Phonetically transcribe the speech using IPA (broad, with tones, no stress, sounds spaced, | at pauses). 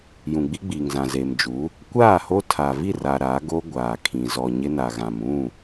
j ũ˨ ɡ͡b i˦ ɡ͡b iː˨ ŋ z ã˨ z eː˨ m d͡ʒ u˨˦ | kʷ aː˦˨ h o˦ tʰ a˨ v i˦˨ r a˨ ɾ a˨˦ ɡ o˦ ɡʷ aː˨ kʰ ĩ˨ z ɔ˨ ɲ ɪ˦ n a˨ ɣ ã˨ m ũ˦˨